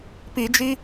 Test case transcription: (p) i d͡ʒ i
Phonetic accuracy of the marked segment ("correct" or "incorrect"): correct